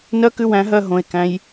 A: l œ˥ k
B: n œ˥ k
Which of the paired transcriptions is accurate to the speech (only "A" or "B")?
B